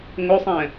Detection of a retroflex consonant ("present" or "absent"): absent